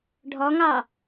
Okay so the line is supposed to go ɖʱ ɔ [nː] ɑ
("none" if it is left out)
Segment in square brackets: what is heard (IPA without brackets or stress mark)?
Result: ŋ